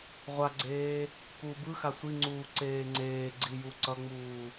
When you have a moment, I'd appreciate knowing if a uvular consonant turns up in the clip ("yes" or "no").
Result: yes